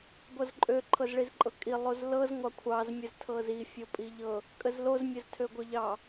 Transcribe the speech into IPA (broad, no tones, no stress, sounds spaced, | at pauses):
ɡʷ ʌ z ǃʼ ø ǃʰ ɤ z ɭ i z ǃʼ ɤ kʼ i lˠ o z l ɤ z ŋʷ ɑ kʷʰ ɑ z mʲ ə z tʰ ɤ z i fʲ o pʼ i ʎ ɤ | kʼ ə z l o z mʲ ə z tʰ ø ɡʷ ʌ ʎ ɑ